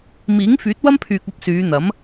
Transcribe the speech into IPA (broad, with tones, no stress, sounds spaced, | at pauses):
m iː˨˥ ŋ f yː˨˥ t̚ w ɐ˥ m pʰ yː˨ k̚ ɐ˥ p̚ s yː˨˧ n̪ ɐ˨˥ m